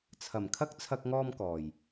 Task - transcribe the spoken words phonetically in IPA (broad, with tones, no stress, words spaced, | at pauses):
t͡sʰɐ˨˩mkʰɐ˥k̚ t͡sʰɐ˥k̚ŋɔː˥mkɔː˨˩j